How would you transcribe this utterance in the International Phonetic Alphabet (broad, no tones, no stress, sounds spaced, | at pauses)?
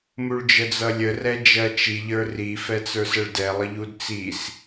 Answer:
m u ɭ d͡ʒ ə d͡z ʌ lʲ ə r ɛ d͡ʒ ɜ t͡ʃ i ʎ ə˞ r i f ɛ t͡s ə˞ s ə ɭ d ɛ lˠ ə ʎ u d t͡s i s